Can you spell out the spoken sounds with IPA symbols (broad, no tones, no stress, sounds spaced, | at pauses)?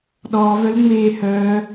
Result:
ɗ ɔː v œ l ŋ͡m eː h œː